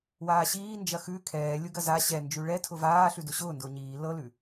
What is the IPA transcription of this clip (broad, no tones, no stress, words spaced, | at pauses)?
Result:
waːɕiː nd͡ʒɐxʉ kʰɛː lʲʊɡɐza ɕɛnd͡ʒʉ ɭɛtʰʊ vaːɬʉ dʊɕʊːndʊː ɲiː lɤlʉ